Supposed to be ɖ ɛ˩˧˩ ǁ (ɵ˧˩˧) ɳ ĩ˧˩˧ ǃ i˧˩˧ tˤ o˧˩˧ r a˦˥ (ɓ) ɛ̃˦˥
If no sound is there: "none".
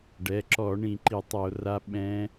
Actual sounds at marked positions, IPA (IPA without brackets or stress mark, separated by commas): ɔ˧˩˧, ɓ